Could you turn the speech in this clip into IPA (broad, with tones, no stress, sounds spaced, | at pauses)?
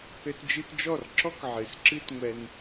ɘ˧ t d͡ʒ ɨ˧ t d͡ʒ ɔ˦˨ r ǁ ɔ˦ k ʕ ɨ˨ s ǁ ɨ˦ t ŋʷ ɛ˧ n